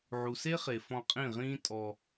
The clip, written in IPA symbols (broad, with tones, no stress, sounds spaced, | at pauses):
ʕ u˨ s e˦ χ e˨ f ɔ̃˧ qʼ ĩ˦˨ ʁ ĩː˦ tʼ ɔ˧